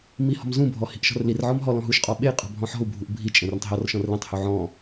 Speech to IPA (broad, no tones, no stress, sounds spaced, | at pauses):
m i h ɔ̤ m z ũ bʱ ɔ h i̤ ʔ ʃ ɔ̤ r l i r ʕ ɔ m ɦ ɔ l ɔ̃ ɦ u ʃ qʼ ɔ ɓ e i̯ qʼ ɔ̤ bʱ ɔ̃ ħ ɔ̤ u̯ bʱ u ʔ bʱ i t͡ʃʼ ẽ r ə̃ tˤ ɦ ɔ r ʃ ɔ̃ r l ẽ tˤ h u ʕ ɔ̃